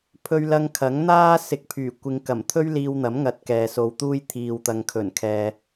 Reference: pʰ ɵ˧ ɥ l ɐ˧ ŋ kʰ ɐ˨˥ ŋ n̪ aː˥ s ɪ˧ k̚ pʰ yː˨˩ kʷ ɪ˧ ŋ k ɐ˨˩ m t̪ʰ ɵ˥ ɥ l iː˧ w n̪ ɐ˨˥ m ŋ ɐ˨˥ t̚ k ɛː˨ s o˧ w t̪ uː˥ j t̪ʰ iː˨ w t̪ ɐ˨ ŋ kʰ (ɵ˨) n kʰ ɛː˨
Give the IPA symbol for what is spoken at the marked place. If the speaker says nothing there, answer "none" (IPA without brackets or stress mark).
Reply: ɵ˨˩